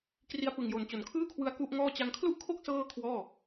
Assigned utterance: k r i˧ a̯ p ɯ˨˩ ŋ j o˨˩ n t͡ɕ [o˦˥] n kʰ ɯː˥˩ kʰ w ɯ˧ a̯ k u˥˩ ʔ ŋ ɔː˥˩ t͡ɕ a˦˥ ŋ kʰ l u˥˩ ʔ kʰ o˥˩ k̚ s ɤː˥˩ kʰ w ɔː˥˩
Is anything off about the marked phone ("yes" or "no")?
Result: yes